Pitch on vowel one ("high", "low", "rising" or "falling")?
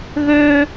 high